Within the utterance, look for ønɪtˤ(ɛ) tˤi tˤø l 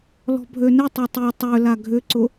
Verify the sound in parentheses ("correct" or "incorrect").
incorrect